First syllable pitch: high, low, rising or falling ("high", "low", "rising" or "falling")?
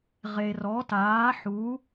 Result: low